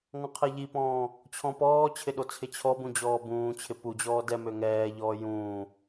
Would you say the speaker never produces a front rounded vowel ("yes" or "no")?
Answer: no